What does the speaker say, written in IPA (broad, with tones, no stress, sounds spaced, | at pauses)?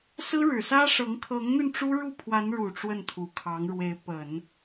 s ɹ̩˥ ɻ ɻ̩˨˩ s ä˥ ʂ ɤ˧˥ ŋ kʰ ɤ˧˥ ŋ n̪ y˧ n ʈ͡ʂ u˥ ɻ u˥˩ pʰ w a˧˥ n ɻ u˨˩ ʈ͡ʂ w ə˥˩ n t̪ʰ u˨˩ kʰ ɑ˧˥ ŋ ɻ w e˧˥ ɪ̯ p ə˨˩˦ n